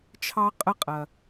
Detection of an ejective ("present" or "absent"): present